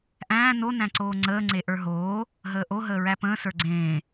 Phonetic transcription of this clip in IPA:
ʔ æ̃ː n o n æ̃ ǀ oː ŋ͡ǀ əː ŋ͡ǀ e ʔ ə˞ ɦ oː | ɦ əː ʔ o ɦ əː ɹ æ p ə̃ː s ə˞ ɡ͡ǀ ẽː

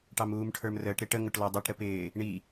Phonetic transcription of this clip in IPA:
ʈ ɑ m uː m ʈʰ ə˞ m r əː ʈ ɾ ɪ ʈ ə ŋ ʊ ʈ l ɔ dˤ u ʈ ɾ ə p ɪː | ɳ i

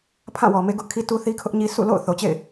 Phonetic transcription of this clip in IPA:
pʰ ã˦˨ w ɔ˨ m e˦ ɡ ʊ˦ ʔ kʰ i˦ t u˦ θ i˦ kʰ ʊ˦ ʔ ɲ i˦ s ṵ˦˨ l o̰˦˨ ʊ̯ θ o˨ t͡ɕ ḛ˦˨ ɪ̯

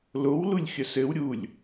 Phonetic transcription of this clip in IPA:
l o w l u lʲ xʲ ə s ɘ w ɾʲ u lʲ

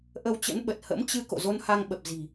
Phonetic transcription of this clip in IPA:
ʔ ə˧ w t͡ɕ ə̰˧˥ n ɓ ə˨˩ t̚ h ə̰˧˥ m t͡ɕ ɨ˧ k o̰˧˨ z o˧ n h a˧ ŋ ɓ ə˨˩ p̚ z i̤˨˩

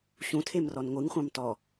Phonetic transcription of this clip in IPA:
ɕ ũ tʰ e m r ɔ n ŋʷ ɨ ŋ χʷ ɑ̃ m t ɔ

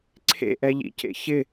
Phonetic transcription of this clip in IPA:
ǀʰ ḛ ʔ ɛ ʎ ḭ c ḛ ç ɪ

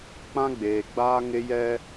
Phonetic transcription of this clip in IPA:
k͡p ã˦ ɡ͡b eː˨ ɡ͡b aː˦ ŋ ɪ˦ j ɛ˦

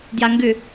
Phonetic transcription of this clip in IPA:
d j a ŋ ɡ ʏ

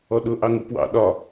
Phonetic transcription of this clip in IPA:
ɔ ɗ ʊ ʔ ɑ ŋ u p w ɑ̰ ɗ ɒ

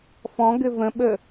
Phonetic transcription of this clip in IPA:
f ɔ̃ ɡ ɘ v ə̃ ɓ ə

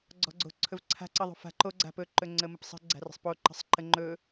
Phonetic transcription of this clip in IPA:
ɡ͡ǀ ɔ̤ ɡ͡ǀ o̤ ǀʰ ɵ v ǀʰ a̤ ǀ ə ðˤ o̤ f a̤ ǃ o ɡ͡ǀ a̤ p ɵ ǃ ɵ ŋ͡ǀ ə m ə p sˤ ə̤ ɡ͡ǀ a̤ r ə̤ sˤ p o ǃ ə̤ sˤ ǃ ə ŋ͡ǃ ɵ

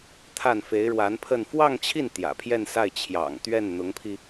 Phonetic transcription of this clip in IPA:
t̪ʰ a˥˩ n f e˧˥ ɪ̯ ɻ w a˧˥ n pʰ ə˥˧ n f w ɑ˥˧ ŋ t͡ɕʰ i˥˩ n t̪ j ä̰˨˩ pʰ j ɛ˥˧ n s a˥˩ ɪ̯ t͡ɕʰ j ɑ̰˨˩ ŋ t̪ ɥ ɛ˥˩ n n̪ ʊ˧˥ ŋ pʰ i˧

